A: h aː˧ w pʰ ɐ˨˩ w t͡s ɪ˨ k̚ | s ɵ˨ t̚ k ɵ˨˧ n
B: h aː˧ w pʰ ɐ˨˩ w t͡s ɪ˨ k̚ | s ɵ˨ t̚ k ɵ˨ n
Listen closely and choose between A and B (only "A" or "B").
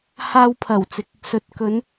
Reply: A